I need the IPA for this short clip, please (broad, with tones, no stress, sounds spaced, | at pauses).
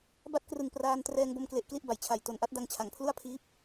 b a˥˩ t̚ k r ɯ˨˩ ŋ p r aː˧ n t r ɛː˧ ŋ b o˧ m k l e˨˩ ʔ k l i˥˩ ʔ b a˩˦ j t͡ɕʰ a˨˩ j t o˨˩ n ʔ a˦˥ t̚ d a˧ ŋ t͡ɕʰ a˩˦ ŋ pʰ l u˥˩ a̯ pʰ iː˦˥ p̚